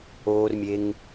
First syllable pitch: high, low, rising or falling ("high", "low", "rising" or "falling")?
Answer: low